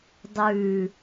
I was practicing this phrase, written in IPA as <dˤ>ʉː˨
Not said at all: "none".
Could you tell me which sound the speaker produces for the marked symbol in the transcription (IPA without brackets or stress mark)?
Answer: dˤ